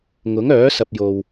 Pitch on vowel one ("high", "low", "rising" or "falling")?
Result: rising